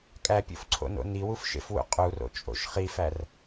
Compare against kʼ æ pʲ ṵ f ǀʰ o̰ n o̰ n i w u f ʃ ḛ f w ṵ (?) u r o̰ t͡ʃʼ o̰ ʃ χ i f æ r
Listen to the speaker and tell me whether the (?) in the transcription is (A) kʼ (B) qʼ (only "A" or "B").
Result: B